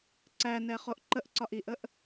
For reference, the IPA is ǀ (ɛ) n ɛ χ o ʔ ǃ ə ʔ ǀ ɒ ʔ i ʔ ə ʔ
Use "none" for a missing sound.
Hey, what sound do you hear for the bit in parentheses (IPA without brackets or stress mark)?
æ